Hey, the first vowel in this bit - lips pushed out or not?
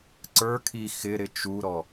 no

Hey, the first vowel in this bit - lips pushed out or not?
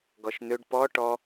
yes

